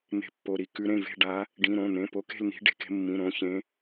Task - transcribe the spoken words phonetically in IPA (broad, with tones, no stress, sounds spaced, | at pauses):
n̪ e̤˨˦ pː o˩˧˩ ɾ i˩˧˩ k ʉ˨˦ ɾ ẽ˩˧˩ v e̤˦˨ ɖ a˨˦ | ɖ ĩ˩˧˩ ɾ õ˩˧˩ n̪ ẽ˩˧˩ p o˨˦ k e̤˦˨ l n̪ i̤˨˦ ɖ e̤˨˦ k e̤˨˦ mː ĩ˩˧˩ ɾ õ˦˨ ç ẽ˨˦